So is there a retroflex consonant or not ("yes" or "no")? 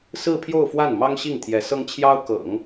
no